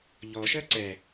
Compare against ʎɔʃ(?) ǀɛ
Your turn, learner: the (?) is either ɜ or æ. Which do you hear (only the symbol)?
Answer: ɜ